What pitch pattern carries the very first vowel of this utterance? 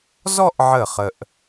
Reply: falling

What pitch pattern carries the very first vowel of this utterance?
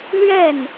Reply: falling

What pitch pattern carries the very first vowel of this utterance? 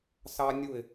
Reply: high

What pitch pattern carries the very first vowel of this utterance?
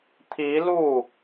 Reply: rising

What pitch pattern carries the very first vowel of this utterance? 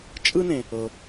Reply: high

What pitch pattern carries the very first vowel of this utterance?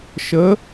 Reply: rising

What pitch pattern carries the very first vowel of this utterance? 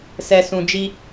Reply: low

